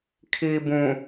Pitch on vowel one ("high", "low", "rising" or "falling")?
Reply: low